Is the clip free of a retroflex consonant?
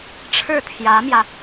no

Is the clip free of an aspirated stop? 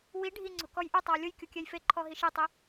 no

